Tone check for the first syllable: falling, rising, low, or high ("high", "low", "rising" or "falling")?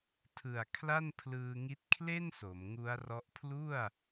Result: low